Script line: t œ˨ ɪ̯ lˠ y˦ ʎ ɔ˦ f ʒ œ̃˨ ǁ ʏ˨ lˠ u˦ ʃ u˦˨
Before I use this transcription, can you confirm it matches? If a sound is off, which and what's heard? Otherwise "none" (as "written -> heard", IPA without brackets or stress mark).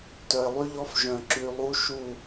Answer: ʏ˨ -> y˨